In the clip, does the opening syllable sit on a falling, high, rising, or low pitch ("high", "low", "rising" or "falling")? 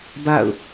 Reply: falling